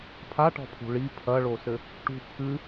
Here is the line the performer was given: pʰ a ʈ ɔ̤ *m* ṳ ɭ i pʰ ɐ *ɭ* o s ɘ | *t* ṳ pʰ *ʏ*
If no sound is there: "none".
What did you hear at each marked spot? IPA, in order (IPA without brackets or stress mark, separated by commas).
pʰ, ɭ, ʈ, ɨ